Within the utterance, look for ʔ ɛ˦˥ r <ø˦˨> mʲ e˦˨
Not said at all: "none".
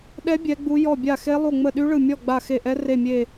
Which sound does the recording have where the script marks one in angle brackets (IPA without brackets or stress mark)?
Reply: e˦˨